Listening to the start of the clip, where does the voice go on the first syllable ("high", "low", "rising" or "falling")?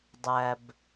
low